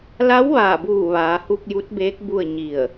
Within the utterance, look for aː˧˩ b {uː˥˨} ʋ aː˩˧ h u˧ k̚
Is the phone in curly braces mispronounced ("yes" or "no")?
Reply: yes